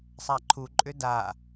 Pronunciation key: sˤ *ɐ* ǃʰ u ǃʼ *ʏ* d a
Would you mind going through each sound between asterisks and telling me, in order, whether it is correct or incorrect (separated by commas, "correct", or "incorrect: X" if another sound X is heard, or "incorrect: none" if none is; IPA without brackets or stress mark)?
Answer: incorrect: a, correct